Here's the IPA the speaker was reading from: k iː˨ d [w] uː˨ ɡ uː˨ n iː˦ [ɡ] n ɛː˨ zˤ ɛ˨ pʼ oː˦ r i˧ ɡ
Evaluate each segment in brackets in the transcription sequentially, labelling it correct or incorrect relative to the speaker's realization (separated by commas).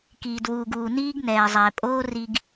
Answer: correct, correct